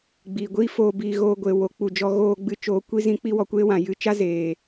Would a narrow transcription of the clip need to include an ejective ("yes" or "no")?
no